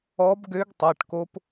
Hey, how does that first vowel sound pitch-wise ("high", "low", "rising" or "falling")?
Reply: rising